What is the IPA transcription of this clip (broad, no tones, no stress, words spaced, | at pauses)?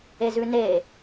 ezʉne